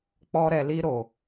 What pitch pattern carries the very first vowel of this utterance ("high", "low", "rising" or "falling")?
high